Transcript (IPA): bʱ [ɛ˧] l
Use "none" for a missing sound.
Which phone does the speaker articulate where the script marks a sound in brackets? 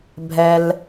ɛ˧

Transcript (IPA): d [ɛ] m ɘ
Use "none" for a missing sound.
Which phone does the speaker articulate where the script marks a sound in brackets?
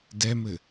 ɛ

